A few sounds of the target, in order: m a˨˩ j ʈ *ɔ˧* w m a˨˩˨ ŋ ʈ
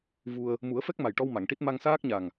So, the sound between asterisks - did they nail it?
yes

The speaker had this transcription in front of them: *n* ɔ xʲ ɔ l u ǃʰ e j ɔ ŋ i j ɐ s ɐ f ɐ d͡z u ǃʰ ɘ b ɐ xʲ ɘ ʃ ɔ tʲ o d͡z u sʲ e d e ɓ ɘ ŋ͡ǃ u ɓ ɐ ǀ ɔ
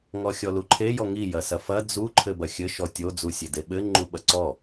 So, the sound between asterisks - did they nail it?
no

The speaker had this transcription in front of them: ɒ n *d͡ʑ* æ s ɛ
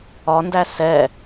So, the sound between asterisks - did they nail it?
no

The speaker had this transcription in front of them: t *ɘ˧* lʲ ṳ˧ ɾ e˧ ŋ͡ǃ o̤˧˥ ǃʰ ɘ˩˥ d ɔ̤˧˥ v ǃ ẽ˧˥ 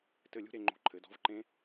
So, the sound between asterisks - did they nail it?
no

